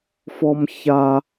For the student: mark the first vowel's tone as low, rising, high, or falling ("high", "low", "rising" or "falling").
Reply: high